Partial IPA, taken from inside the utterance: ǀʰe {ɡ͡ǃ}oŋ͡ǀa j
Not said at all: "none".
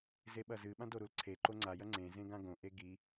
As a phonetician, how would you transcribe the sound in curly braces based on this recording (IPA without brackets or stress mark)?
ǃ